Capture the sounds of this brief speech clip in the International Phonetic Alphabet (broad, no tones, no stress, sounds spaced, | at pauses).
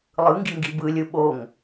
lˠ ɯ ŋ ɡ i ŋ ɡ i b ɯ lʲ ɯ ɓ o ŋ